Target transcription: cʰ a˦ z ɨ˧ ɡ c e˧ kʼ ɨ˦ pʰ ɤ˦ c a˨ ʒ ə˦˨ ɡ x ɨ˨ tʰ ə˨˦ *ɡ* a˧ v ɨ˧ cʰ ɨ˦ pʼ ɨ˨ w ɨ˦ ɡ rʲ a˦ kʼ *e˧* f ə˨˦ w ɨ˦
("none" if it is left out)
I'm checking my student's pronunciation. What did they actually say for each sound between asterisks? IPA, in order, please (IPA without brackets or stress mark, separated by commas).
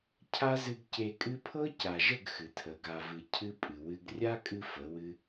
ɡ, ɨ˧